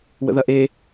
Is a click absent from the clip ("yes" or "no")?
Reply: yes